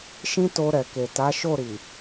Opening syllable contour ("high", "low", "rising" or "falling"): high